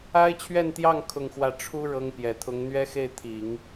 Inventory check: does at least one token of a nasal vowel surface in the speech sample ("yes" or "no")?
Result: no